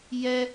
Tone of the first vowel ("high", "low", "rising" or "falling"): high